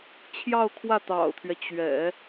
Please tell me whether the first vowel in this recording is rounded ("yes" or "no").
no